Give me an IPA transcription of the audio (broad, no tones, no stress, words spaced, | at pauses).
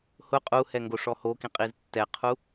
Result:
hʊ qʼuhɛ ŋɡoʂɔhokĩ qʼiztːɛqʰu